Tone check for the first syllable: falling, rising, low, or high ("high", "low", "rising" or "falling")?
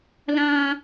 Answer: high